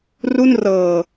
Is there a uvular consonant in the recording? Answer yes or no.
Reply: no